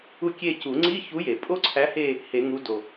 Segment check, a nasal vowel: absent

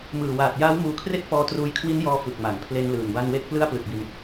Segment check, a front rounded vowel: absent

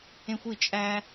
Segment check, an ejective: present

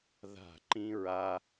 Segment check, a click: present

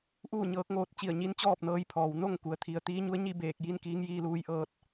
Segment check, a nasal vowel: absent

